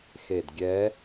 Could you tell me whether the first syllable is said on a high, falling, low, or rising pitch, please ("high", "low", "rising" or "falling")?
low